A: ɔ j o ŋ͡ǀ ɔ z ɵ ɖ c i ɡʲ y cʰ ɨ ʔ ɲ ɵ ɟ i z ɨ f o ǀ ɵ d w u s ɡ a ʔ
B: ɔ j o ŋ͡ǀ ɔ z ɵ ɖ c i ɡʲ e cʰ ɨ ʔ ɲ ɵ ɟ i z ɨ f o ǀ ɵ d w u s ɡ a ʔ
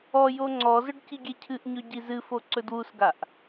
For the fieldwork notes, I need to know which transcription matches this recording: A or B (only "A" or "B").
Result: B